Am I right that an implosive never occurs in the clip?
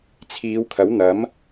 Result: yes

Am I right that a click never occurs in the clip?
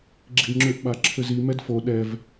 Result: no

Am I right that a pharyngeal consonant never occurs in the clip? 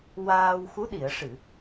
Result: yes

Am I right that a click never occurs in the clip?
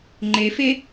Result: no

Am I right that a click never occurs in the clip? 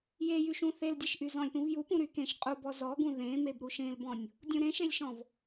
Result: yes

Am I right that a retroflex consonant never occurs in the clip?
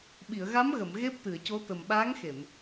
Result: yes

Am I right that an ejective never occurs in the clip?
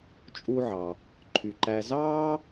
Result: no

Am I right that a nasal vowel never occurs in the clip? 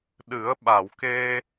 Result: yes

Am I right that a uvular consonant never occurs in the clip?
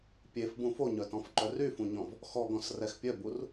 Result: yes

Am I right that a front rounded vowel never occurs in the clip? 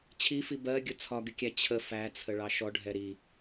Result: yes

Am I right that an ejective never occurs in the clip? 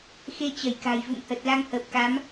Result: yes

